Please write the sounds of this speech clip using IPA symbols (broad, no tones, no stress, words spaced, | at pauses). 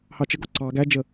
hɑt͡ʃəɡɔ ǀɑ ɡæd͡ʒə